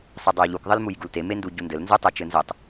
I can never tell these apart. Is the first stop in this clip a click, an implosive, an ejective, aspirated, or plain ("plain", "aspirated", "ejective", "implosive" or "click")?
plain